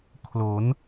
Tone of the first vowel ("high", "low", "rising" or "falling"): rising